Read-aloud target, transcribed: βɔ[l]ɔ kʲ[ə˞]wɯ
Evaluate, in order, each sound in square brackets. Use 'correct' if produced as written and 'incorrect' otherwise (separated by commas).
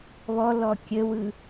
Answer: correct, incorrect